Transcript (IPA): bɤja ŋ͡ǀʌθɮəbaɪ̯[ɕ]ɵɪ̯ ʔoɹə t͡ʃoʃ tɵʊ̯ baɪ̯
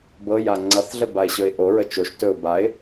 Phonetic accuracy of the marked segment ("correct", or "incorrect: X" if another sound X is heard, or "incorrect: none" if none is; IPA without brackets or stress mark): correct